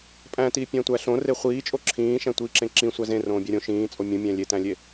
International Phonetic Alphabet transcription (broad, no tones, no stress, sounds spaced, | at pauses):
pʼ æ̃ t iː pʲ æ̃ tʷ æ ɬ õ r e χʷ iː t͡ʃʼ o ǁʰ ĩː ʃ æ̃ tʷ iː ǁ ẽ ǁ ĩ sʷ æ z ẽ r õː bʲ æ ɾʲ õ ʃ ĩː t͡sʼ o mʲ ũ mʲ æ̃ lʲ e t æ̃ lʲ e